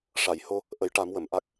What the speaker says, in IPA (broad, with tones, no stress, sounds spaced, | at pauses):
ʂ a˨˩˨ j h o˧ | ʔ ə˨˩˦ j ʈ a˨˩˦ m w ə˨˩˨ m ʔ a˦˥ k̚